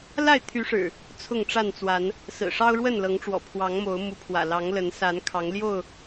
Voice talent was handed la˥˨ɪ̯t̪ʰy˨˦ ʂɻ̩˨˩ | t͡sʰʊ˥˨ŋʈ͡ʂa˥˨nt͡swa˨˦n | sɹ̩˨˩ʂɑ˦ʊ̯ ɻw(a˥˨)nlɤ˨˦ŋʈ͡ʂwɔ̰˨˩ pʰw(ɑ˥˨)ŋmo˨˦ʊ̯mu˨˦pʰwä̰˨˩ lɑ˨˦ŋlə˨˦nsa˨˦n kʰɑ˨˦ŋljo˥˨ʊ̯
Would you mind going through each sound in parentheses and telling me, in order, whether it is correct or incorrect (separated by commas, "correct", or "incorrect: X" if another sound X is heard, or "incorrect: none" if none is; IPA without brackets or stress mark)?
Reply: incorrect: ə˥˨, incorrect: ɑ˨˦